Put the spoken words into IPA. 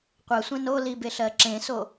qʷ ɜ sʷ ẽ n o l i b e ɬ ɜ ǁ ẽ s o

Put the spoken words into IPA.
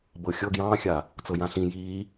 b ɤ xʲ ɤ ɡ j ɑ̃ː xʲ a | t͡s ɤ j ã ɬ ĩ j iː

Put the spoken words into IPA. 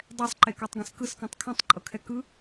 dˤ ɛ sˤ ǃ e k ɔ tˤ ɡ ẽ s k ɯ s k ɔ̃ tˤ kʰ õ tˤ ǃʼ ɤ kʰ ɛ k ɯ

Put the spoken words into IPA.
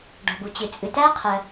ɖ ɔ̤˩ b u˩ t͡ɕ ɨ˩ t͡sʼ ɨ˩ t æ˥ qʰ ɜ˩

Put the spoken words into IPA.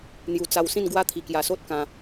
n̪ j u˨˩ t͡s a˧ w s ĩ˥˧ n ɡ w a˦ t̪ʰ i˨˩ k j a˨˩ s o˦ t̚ k ã˧

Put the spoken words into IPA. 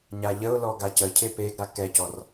ɲ a ʎ ə ʊ̯ l ɔ ɡ a c ə cʰ e p e ɡ ɾ a k ɛ c ɔ r

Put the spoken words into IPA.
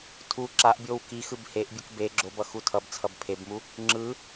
tʰ u ǁ a ʔ bʲ o w k i x ɯ b h e ʔ bʲ ɯ k b e ɡ͡ǁ o b ʌ x u tʰ ʌ b t͡sʰ ʌ b pʰ e b m u | ŋ͡ǁ ɯ

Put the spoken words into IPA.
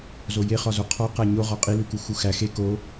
z o j e χ ɒ z o qʰ ɒ q æ ɲ o ʁ ɒ qʼ i l u k u x u x æ x e k o

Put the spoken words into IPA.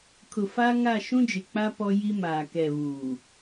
kʰ ʊ˨ f a˦ ŋ a˦˨ ʃ ũ˦ d͡ʒ ɪ˨ k͡p a˦ p ɔ˦ j i˦ m aː˨ k ɛ˨ β uː˨

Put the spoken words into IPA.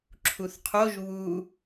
ǁʰ u θ qʰ o ʒ β u

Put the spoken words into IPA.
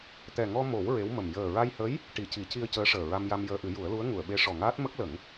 t̪ ɛ˨˩ ŋ ɔ˧ m o˨˩˦ w ɹ e˧˥ w m ə˨˩ m j əː˨˩ ɹ a˧ j h ə˧˥ j | ʈ i˨˩ c i˨˩˦ c i˧ ə̯ c əː˧˥ ʂ əː˨˩ ɹ a˧ m j a˧ m j əː˧ ʔ ɨ˨˩˦ j u˨˩˦ ə̯ l u˧˥ ə̯ ŋ u˨˩˨ ə̯ ɓ e˧˥ ʂ ɔ˨˩ ŋ aː˦˥ t̚ m ə˦˥ k̚ l ə˨˩˦ ŋ

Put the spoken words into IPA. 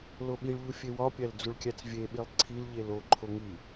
l o ɓ i ɭ ʎ u fʲ e w ɒ pʲ æ l d͡z u ɭ kʲ æ t͡s vʲ e ɓ i lˠ ǀʰ i l ʎ e l o ǃʰ o ŋ i

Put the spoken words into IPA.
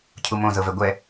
cʰ u m õ z ɤ v ɛ ɡʷ ɛ

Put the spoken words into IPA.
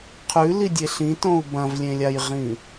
qʰ ʉ l i dʲ e ɬ ĩ t õ u̯ b ɐ̃ v lʲ ẽ lʲ a j ʁ ĩ

